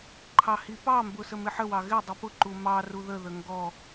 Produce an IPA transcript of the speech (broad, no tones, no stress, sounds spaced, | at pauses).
ǃʰ ɑ h i p ɑ m b ʊ s ə m ɪ ħ ə w ɑ ɣ ɪ dˤ i p ʊ ǃ u m ɑ r u ð ə ð ə ŋ ɡ ɔ